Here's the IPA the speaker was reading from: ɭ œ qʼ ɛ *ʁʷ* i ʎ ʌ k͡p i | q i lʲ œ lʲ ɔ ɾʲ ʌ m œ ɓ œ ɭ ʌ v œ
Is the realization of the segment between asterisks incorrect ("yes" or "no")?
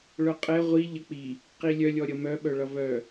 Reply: no